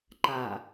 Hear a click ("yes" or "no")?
yes